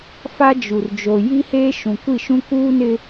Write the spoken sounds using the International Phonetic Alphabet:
f a˦ d͡ʒ u˨ r d͡ʒ o˨ j i˦ h eː˦ ʃ ũ˨ kʷ i˦˨ ʃ ũ˦ k uː˦ n ɪ˦

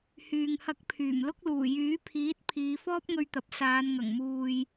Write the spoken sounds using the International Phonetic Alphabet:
h yː˨ ŋ h ɐ˧ k̚ pʰ yː˨˩ m l ʊ˥ k̚ l uː˨˩ j yː˨˥ pʰ iː˨˥ t̚ pʰ iː˨˧ f ɔː˥ p̚ ŋ ɵ˧ ɥ t̪ ɐ˨ p̚ s aː˨˧ n ŋ ɐ˨˩ ŋ m uː˨ j

